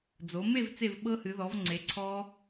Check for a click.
present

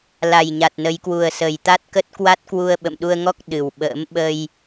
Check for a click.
absent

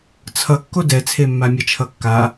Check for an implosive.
absent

